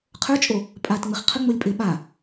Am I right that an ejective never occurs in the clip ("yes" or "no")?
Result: no